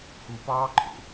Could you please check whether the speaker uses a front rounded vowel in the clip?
no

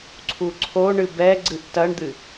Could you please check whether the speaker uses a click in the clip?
yes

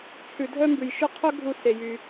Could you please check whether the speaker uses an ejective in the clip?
no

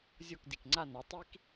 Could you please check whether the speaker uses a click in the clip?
yes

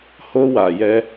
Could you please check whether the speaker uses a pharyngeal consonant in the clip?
no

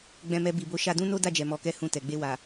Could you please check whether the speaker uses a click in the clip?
no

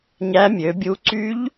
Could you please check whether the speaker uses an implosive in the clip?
no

